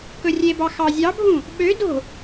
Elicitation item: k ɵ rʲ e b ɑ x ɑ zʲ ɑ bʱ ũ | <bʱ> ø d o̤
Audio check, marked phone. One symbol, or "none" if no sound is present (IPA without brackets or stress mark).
ɓ